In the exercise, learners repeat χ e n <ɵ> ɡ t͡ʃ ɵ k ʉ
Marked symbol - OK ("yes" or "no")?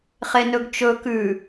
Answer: yes